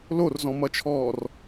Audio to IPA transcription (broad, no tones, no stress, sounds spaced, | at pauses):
l o r z ɔ̃ m ʌ t͡ʃʰ ɔː r